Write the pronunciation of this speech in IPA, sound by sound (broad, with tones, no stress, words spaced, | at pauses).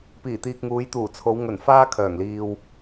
piː˨˩t̪iː˨k̚ŋuː˨˧j t̪uː˨˩t͡sʰo˨˧wŋɵ˨˩n faː˥kʰœː˨˩ŋliː˧w